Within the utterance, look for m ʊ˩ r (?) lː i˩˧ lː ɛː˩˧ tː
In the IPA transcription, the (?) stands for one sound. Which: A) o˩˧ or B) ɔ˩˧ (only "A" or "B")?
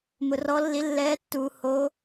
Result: B